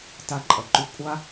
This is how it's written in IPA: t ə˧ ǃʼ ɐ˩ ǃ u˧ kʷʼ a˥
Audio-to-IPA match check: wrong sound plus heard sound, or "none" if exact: ə˧ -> a˧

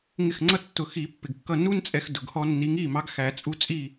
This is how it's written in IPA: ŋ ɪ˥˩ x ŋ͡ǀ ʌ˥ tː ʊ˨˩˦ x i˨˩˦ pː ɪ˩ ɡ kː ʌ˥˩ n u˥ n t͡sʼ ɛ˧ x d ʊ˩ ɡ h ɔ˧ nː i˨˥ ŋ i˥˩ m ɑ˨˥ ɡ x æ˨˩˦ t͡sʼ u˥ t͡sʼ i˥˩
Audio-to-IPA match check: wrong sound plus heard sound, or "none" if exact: none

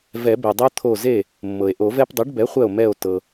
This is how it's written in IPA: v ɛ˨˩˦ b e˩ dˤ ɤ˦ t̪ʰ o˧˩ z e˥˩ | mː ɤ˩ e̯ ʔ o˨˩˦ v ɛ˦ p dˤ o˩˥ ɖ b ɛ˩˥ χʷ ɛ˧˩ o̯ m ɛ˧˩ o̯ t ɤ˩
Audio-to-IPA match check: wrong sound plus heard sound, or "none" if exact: none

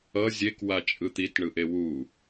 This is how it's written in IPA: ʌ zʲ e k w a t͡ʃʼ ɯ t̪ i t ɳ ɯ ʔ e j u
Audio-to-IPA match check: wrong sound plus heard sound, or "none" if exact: j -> w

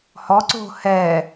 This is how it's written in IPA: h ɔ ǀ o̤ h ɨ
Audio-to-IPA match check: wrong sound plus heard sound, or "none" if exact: ɨ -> ɛ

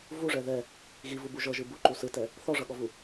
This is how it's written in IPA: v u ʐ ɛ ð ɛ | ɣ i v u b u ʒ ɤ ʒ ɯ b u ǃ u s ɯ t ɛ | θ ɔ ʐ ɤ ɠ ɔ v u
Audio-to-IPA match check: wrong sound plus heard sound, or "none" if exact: none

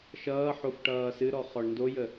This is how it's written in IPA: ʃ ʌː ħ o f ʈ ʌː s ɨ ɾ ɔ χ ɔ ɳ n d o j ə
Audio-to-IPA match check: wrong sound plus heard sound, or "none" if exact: none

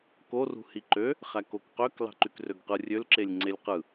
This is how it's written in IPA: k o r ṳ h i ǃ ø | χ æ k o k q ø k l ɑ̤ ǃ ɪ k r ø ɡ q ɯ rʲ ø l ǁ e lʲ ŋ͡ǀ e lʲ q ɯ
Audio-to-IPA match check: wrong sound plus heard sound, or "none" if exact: ɪ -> y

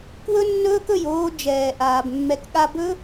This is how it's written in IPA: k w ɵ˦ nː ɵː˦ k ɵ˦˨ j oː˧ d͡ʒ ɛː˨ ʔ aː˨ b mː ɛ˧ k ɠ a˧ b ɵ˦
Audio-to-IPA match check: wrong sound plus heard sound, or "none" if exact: none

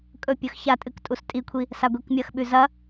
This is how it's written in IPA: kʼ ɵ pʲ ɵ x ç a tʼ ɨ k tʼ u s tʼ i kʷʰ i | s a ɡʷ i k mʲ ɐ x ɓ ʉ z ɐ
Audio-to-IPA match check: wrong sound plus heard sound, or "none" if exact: none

